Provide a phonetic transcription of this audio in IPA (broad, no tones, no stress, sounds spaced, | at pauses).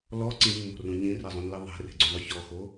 l ɔ ǀ ĩ mː o̤ r ũ ɲ ĩ r e zˤ ũ n l i ðˤ e̤ r e̤ ɡ͡ǀ ũ ðˤ ʊ ç ɔ x o